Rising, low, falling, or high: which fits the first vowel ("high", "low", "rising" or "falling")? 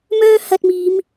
high